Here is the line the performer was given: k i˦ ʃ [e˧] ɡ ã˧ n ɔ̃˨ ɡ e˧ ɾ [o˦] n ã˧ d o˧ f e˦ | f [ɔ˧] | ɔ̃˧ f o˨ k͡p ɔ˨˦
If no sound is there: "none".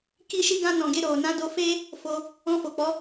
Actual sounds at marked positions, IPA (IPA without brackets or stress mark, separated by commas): i˧, o˨, o˧